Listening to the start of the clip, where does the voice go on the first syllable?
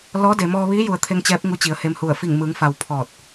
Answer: rising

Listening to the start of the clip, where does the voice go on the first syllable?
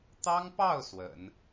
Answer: high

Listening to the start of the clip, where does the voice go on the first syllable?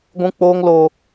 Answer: high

